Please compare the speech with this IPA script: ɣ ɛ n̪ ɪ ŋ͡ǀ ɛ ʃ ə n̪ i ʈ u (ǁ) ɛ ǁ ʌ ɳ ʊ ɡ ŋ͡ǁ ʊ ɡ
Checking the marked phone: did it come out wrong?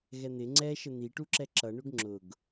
no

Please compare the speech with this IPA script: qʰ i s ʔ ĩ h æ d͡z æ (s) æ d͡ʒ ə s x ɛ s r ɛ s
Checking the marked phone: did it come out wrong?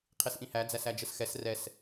no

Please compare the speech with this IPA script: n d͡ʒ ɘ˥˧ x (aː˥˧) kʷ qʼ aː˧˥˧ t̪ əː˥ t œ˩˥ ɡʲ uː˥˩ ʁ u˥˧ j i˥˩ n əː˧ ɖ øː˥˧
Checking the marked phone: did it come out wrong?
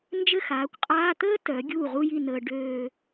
yes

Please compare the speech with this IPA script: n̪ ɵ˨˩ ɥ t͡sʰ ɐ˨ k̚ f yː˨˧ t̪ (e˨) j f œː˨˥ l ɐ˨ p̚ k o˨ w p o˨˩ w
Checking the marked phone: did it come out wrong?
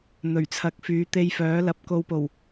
yes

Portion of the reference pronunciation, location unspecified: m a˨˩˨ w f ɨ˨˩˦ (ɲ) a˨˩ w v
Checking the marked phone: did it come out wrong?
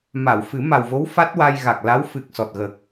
yes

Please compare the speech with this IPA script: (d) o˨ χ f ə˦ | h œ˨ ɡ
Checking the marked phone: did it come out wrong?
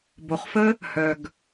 yes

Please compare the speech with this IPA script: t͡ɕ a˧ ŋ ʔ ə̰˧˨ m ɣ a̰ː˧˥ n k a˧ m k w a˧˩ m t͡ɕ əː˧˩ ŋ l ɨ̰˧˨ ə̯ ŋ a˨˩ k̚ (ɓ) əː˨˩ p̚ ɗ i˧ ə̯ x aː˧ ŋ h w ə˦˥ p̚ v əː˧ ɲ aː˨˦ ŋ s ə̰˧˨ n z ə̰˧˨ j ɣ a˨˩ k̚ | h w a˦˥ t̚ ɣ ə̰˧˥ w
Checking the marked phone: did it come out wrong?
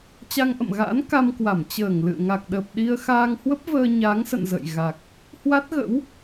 yes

